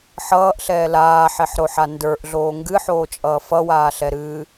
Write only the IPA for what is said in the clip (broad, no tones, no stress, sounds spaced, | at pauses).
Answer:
ħ ʌː ʔ ɬ ɛː l aː ħ ɛ ħ ɾ o ħ a n d ə˞ ʔ ɮ oː ŋ ɡ ɨ ħ oː t͡ʃʼ ʌː f ʌ w aː ɬ ɛ ɾ ɨː